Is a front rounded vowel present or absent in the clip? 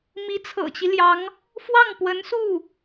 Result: absent